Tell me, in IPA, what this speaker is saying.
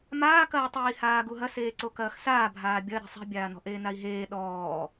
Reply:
m aː k ɐː tˤ iː h aː ɡ u ɦ ɐ s eː ǀ o k ɐː x s aː bʱ aː bʲ ɐ ɾ i̤ sˤ i̤ bʲ aː n ɔ̤ ʔ eː n a i̯ ɦ eː ɗ ɔː

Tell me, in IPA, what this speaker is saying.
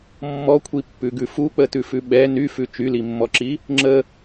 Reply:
mː ɔ kʷʰ i pː ʉ ɡ ʉ f u k͡p ə t ʉ f ʉ ɓ ɛ n y f ʉ t͡ʃ y l i mː ɔ ǁ i | ŋ͡ǁ ə

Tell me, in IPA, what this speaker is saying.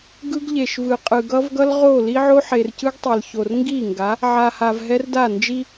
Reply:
ɡ ɯ˦ ɡ ʎ e˨ ʃ v ɯ˨ qʼ ɯ˨ ɡ ʌ˦ v ɡ ʌ˦ l ʁ o˦˨ l i˦ ʕ o˦ ħ e˨ r c ɯ˦ ɡ tˤ e˨ l ç o˨ r ŋ ɡ i˦˨ ŋ ɡ a˨˦ | ʕ a˨ h a˨ v ɦ ɛ˦ r d a˦˨ n d͡ʒ i˦

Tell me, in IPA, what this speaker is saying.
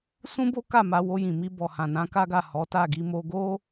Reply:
s ũ˦ b o˦ k a˦˨ m a˧ w o˧ j ĩ˨ m i˧ b ɔ˨ h ã˨ n ã˨˦ k a˦ ɡ a˦˨ h ɔ˨˦ t a˦˨ ɡ i˧ m o˧ ɡ o˦

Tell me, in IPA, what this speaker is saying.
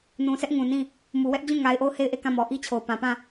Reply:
n ũ˨ sʰ ɛ˦ ʔ ŋ ũ˨ n ĩ˦˨ | m u˨ w ɛ˦ ʔ d͡ʑ ũ˦˨ ŋ a˨ ɪ̯ ʔ o˦˨ ʊ̯ h e˦˨ ɪ̯ ʔ e˦˨ k ã˦˨ m ɔ˨ ʔ i˦ t͡ɕʰ o˨ ʊ̯ p ã˨ p ã˦˨

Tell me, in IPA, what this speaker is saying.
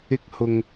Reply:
ɪ˧ k̚ h ʊ˨ ŋ

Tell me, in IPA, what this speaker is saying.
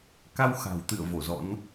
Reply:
k a˧ w x a̤˨˩ w t̪ ɨ̰˧˨ ə̯ v o˧˩ z ɔ̰˧˥ n

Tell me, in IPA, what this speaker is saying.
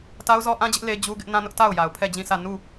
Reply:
t a˦ ʊ̯ z ɔ˦ ʔ ã˦ d͡ʑ ɪ˦ ʔ l e˦ d͡ʑ u˦ ɡ ɪ˦ ʔ n ã˦ n ʊ˦ ʔ t a˦˨ ʊ̯ j a˨ ʊ̯ pʰ ɛ˦˨ d͡ʑ ĩ˦˨ sʰ ä˦˨ n u˦˨

